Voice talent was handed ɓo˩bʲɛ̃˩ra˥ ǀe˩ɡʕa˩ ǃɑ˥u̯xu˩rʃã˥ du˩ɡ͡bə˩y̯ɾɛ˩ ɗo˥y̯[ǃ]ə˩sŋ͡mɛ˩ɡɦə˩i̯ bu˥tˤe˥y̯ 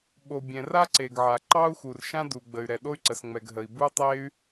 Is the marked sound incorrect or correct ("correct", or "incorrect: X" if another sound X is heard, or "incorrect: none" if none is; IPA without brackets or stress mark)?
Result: incorrect: ǀ